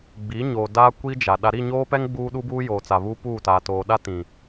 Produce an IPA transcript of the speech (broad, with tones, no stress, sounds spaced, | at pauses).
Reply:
ɡ͡b i˨˦ ɲ oː˨ d aː˦ kʷ i˦ d͡ʒ a˨ ɗ a˨ ɾ i˦˨ ɲ oː˦ p ɛ˦ ŋ ɡ͡b uː˦ ɗ u˦ b uː˦ j oː˨ t͡s a˨ β uː˦ p uː˦˨ t aː˨ t oː˨ ɗ a˦ t ĩ˨